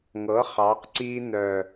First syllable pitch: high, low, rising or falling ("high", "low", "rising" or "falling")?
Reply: rising